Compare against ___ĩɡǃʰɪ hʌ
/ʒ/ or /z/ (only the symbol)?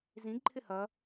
z